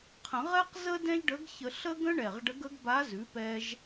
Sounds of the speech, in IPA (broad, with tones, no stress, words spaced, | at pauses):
qʰə̃˨˩˦ʁɛ˥qzə˥ dɛ̃˥ʒɖə˧˥ɡçə˧ɬə˥ ɡə̃˥ɳɛ˨˩ʁɖə˧˥ɡ ə˧˥ɡba˧˥zʉ˩˥pɛ˧ʒ